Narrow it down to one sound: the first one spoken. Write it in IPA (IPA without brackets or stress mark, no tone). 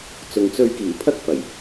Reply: t͡s